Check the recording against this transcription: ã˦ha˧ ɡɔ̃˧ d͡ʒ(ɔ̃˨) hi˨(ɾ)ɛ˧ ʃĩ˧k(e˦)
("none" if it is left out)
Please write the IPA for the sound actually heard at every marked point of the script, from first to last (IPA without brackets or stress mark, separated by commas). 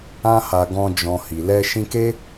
ɔ̃˨, l, e˦